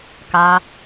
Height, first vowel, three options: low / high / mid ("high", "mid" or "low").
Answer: low